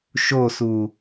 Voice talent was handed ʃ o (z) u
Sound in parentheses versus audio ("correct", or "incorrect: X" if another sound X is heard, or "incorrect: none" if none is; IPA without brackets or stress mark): incorrect: s